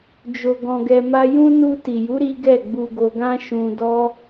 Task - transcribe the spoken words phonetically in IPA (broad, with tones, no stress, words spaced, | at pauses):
d͡ʒo˧ɡɔ̃˧ɡɛ˧ma˦ jũ˦ nu˧ti˨ju˨˦ ɾi˦ ɡɛ˦˨ɡ͡bu˧ɡo˧ɡã˦ ʃũ˧dɔ˦